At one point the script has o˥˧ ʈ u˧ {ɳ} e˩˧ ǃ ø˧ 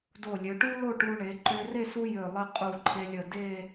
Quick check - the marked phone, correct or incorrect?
correct